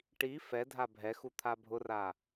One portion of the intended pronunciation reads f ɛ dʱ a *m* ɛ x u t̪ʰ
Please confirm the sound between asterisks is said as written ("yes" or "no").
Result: no